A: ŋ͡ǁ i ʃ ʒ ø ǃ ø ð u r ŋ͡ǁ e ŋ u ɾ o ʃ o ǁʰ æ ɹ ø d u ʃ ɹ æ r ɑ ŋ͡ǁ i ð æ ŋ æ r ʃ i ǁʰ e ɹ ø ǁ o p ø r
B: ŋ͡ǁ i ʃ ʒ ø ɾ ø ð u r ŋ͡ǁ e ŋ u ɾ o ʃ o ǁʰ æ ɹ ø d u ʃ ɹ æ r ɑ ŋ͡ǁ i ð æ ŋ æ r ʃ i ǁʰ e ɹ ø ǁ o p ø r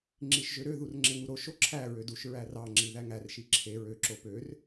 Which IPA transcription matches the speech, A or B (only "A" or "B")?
B